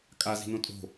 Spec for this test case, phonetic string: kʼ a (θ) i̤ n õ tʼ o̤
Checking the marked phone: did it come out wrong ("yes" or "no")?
yes